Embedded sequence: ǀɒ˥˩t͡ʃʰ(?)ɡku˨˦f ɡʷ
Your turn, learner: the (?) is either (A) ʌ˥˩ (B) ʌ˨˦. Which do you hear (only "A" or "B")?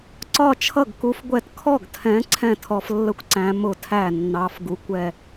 A